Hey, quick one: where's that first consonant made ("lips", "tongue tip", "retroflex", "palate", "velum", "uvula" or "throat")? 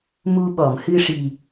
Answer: lips